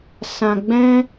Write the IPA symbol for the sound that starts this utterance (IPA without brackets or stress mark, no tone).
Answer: s